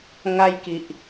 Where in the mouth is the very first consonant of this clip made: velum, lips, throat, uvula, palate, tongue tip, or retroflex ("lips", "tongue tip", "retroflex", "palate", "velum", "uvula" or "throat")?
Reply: velum